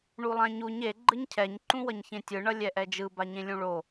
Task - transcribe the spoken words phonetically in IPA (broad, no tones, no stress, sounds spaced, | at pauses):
ɳ u lˠ ã ɲ u ɲ e ɡ͡ǃ ɯ ɲ cʰ ɛ ɲ ǃ ũ w ʌ ɲ ç ẽ tʲ ɯ ɳ ʌ lʲ ɛ ʔ ɛ d͡ʒ ɯ b a ɲ ẽ lʲ ũ ɭ o